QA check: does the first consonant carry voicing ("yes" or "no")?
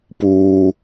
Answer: no